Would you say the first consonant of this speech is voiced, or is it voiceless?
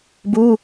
voiced